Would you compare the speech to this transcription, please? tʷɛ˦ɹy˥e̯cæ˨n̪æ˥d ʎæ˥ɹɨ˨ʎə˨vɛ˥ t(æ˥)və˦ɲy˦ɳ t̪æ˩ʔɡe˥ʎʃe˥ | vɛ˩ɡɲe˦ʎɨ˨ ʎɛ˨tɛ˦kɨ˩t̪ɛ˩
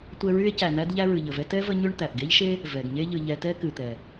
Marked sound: incorrect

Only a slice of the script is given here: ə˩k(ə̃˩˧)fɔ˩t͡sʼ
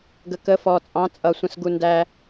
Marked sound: incorrect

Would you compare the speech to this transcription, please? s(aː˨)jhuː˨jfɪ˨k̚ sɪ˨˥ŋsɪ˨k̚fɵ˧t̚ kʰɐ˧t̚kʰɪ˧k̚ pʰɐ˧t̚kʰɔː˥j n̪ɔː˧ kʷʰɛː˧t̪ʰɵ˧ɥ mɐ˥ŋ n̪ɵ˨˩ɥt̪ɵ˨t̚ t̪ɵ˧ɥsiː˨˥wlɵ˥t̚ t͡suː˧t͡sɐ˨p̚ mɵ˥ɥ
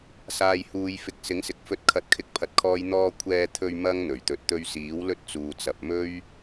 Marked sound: correct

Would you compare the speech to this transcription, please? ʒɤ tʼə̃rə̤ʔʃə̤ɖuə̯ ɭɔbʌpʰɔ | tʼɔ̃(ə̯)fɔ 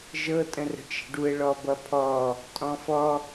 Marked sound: incorrect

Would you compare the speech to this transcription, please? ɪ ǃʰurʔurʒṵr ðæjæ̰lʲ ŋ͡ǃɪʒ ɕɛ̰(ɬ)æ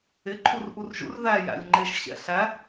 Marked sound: correct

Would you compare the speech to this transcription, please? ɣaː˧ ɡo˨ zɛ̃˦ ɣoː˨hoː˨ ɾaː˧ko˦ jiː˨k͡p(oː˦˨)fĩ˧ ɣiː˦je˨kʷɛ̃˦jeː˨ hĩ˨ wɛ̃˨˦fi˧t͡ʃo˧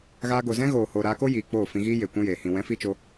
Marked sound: correct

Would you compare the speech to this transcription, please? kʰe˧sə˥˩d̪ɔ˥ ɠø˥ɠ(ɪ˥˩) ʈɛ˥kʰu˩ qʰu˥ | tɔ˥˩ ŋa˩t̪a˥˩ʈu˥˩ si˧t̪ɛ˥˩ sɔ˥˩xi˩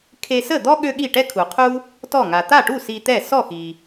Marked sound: incorrect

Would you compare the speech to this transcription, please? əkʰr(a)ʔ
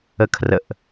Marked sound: incorrect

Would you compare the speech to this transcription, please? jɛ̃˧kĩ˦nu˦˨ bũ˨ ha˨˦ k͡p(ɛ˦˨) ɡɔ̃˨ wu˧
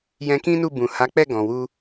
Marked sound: correct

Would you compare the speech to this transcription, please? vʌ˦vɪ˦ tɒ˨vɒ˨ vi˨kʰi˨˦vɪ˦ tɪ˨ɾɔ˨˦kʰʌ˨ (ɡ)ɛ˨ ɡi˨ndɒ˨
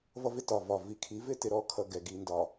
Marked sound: correct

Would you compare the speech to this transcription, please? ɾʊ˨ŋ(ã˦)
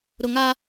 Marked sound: incorrect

